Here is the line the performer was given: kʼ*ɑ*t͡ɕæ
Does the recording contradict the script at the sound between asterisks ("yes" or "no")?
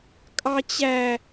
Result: no